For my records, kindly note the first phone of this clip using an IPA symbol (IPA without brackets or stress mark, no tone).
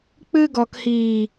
k͡p